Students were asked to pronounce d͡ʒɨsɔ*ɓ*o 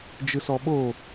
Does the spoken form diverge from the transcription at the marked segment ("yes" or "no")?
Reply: no